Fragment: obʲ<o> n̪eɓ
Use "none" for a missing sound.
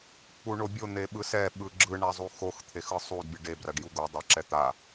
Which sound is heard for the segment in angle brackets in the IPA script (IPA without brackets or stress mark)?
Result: o